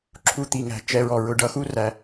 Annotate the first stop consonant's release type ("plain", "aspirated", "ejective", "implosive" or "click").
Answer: click